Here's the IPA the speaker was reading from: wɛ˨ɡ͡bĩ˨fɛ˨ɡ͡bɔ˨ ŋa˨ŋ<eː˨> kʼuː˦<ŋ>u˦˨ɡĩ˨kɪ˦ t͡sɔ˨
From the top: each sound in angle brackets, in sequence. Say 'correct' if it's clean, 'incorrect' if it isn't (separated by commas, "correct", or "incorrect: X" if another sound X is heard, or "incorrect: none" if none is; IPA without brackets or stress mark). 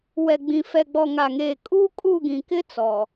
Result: correct, incorrect: kʼ